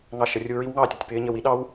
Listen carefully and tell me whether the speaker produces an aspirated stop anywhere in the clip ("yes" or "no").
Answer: no